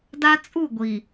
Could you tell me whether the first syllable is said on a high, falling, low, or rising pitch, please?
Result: high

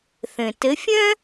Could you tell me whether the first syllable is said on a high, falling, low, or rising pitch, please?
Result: low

